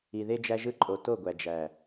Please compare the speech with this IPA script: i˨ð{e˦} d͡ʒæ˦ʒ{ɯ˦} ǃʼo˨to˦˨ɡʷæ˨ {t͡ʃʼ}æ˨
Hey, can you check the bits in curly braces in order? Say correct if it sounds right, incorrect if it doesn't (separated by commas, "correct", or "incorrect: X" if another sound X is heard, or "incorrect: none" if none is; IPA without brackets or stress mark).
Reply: correct, correct, incorrect: d͡ʒ